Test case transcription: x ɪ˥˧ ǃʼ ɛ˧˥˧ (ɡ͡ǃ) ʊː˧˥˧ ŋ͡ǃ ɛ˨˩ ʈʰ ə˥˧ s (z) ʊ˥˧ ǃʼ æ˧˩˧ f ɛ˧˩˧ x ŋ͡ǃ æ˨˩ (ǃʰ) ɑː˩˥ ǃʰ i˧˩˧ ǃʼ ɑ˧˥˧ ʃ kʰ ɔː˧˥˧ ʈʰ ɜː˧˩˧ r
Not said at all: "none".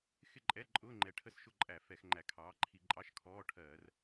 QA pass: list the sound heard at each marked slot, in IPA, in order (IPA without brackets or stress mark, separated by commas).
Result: ǃʼ, ʃ, kʰ